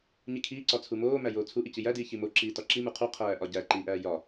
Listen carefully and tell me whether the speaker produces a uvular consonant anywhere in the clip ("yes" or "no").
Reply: yes